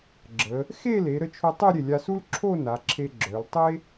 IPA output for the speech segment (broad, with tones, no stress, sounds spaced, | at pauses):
ɡ͡ǁ ə˩˧ | x e˥˧ l e˩˧ ɾ ə˧ t͡ʃʰ o˧ tˤ e˥˧ ɾʲ e˧˩ lʲ a˧ s u˥ l ǁʰ o˥˧ n a˩˧ ǁʰ e˧ ɡ͡ǁ œ˩˧ l tˤ e˥